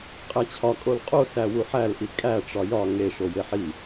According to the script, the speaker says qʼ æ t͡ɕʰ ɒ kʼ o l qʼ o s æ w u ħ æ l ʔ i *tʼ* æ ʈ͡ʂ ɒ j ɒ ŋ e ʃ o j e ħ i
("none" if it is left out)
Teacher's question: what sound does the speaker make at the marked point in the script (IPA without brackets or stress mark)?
kʼ